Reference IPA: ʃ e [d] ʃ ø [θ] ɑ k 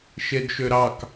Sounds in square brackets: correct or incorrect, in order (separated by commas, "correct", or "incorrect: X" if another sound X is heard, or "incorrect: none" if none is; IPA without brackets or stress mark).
correct, incorrect: ɾ